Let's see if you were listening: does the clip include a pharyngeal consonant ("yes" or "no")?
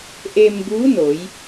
no